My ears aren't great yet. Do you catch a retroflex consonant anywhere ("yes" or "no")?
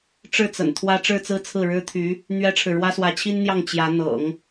yes